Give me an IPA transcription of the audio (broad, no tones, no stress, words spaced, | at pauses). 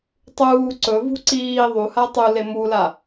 tˤuː ǀɵvṳ ǀiː ðˤuha tˤule mula